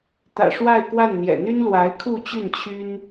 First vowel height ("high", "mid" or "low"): low